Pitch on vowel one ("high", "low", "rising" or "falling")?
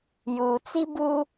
low